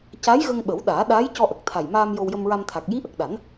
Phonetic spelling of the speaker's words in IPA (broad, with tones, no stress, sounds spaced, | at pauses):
c a˧˥ j ɣ ə˧ ŋ ɓ ə˨˩˦ w ɗ aː˨˩˦ ɗ aː˧˥ j c ɔ˧ ʔ ə˨˩ k̚ t̪ʰ a˨˩ j m aː˧ m j o˧ w j ə˧ m ɹ a˧ m t̪ʰ a˨˩ k̚ j i˧˥ ʔ ə˨˩ k̚ ɗ a˨˩˦ n